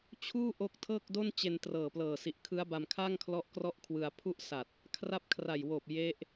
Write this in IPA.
t͡ɕʰ uː˥˩ ʔ o˦˥ k̚ tʰ ɤː˥˩ k̚ d o˥˩ n t͡ɕ e˧ n t r ɤː˨˩ p l ɤː˨˩ s i˨˩ ʔ kʰ ɯ˦˥ a̯ b a˧ m kʰ a˥˩ ŋ kʰ l ɔ˦˥ ʔ k r ɔ˥˩ ʔ kʰ w ɯ˧ a̯ pʰ u˥˩ ʔ s a˨˩ t̚ | kʰ r a˦˥ p̚ kʰ r a˨˩ j w oː˨˩ p̚ j e˦˥ ʔ

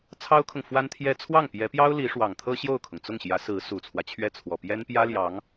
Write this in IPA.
t͡sʰ ɑ˥ ʊ̯ kʰ ʊ˨ ŋ f w a˥ n t̪ʰ j ɛ˥ t͡sʰ w ɑ˥˩ ŋ p j ɛ˧˥ p j ɑ˥ ʊ̯ l i˧˥ ʂ w ɑ˨˩ ŋ t̪ʰ ɤ˥ ɕ j o˥˩ ʊ̯ kʰ ʊ˩ ŋ t͡s ʊ˥˩ ŋ ɕ j ä˧˥ s ɹ̩˧˥ s u˨˩ t͡sʰ w ä˦ t͡ɕʰ ɥ ɛ˥˩ t͡sʰ w ɔ˨˩ p j ɛ˥ n p j ä˥ l j ɑ˧˥ ŋ

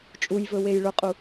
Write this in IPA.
t͡ʃʼ u j v ɵ w e j ɭ ʊ qʼ u

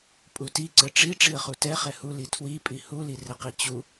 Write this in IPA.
pʼ u t i ǀ ɘ ʈ͡ʂ i ʈ͡ʂ i ə̯ χ u t ɛ χ ɛ h u l i tʰ w i pʼ i h u l i r ɘ q i t͡ɕ u

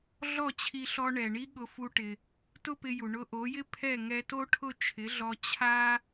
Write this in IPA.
ɮ ɔ˥˩ t͡ɕʰ i˧ ɬ ɔ˧ ɳ ɛ˩ ɳ i˥ ɠ ʊ˧ f u˧ ʈ ɪ˩ | t ʊ˥ p ɪ˧ j u˩ ɳ ʊ˧ ʔ o˩˥ j ɪ˥ pʰ ɛ˥˩ ŋ ɛ˧ t o˥ ʈʰ ʊ˥˩ t͡ʃʰ ɪ˩˥ ɮ ɔ˧ t͡ɕʰ a˥

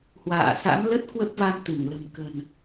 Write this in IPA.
h w a̰ː˧˨ s a̰˧˥ m l ə˦˥ t̚ k w ə˦˥ p̚ v a˧ m t̪ ɨ˧˩ ŋ l ə̤˨˩ m k ə̤˨˩ n

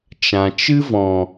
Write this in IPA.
t͡ʃ ã˨ t͡ʃ ɨ˦ v ɔ̃˨

